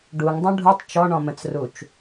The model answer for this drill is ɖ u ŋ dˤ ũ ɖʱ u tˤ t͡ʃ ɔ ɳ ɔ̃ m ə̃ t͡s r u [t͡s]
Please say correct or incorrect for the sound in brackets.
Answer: incorrect: t͡ʃ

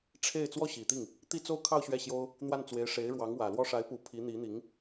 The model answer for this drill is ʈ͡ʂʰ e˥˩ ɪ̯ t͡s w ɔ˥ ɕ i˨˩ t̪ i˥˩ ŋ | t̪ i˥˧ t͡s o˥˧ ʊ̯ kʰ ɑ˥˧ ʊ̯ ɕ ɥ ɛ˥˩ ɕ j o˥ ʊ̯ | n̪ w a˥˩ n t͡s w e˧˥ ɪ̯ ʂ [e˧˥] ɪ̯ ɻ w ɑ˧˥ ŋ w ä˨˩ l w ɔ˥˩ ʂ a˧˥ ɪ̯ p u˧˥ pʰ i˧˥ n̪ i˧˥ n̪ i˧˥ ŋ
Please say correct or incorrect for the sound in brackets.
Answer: correct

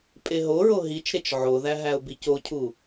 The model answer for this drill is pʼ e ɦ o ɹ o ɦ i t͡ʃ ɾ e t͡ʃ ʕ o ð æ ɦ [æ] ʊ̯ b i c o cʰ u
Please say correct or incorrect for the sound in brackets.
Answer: correct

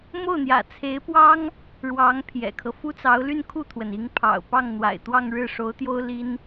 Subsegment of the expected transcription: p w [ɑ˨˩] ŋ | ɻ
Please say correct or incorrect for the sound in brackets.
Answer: incorrect: ɑ˥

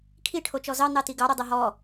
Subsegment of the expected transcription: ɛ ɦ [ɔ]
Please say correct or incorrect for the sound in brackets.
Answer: correct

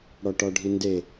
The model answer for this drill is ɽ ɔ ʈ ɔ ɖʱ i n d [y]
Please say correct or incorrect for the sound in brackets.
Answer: incorrect: e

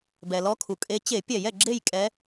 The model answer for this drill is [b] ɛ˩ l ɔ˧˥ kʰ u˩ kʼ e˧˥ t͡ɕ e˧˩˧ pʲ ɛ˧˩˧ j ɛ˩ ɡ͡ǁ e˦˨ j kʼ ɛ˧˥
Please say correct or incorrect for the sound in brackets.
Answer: correct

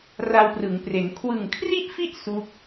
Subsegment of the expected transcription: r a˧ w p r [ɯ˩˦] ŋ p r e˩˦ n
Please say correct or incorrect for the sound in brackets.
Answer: correct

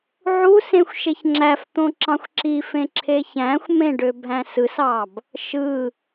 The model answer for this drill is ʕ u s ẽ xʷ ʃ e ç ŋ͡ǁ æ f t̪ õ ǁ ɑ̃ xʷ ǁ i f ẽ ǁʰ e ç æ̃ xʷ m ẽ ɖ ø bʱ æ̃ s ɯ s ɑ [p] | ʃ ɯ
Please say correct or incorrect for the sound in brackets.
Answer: incorrect: b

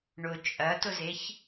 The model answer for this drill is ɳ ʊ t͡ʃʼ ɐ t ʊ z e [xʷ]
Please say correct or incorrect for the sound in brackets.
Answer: incorrect: ç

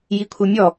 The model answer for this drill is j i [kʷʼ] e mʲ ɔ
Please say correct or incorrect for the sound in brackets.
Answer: incorrect: kʷʰ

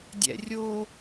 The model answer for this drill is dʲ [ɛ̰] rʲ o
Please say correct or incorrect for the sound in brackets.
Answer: correct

